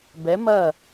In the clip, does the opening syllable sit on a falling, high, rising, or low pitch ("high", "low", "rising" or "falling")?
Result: rising